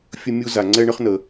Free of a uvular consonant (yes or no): no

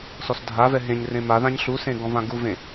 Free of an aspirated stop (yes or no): yes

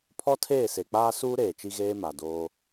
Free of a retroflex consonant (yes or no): yes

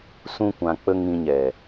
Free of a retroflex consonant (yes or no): yes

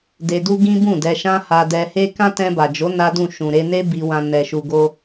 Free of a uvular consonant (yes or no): yes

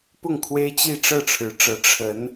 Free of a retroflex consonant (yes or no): no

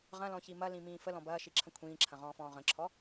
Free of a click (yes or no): no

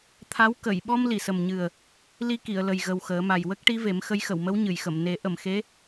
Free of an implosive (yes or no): no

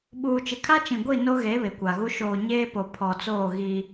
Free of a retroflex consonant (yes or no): yes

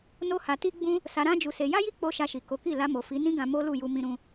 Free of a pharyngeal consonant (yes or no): yes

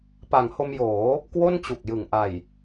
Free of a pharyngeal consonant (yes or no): yes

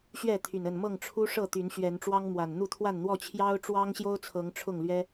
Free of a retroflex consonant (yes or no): no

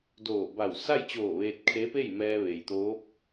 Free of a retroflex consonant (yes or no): yes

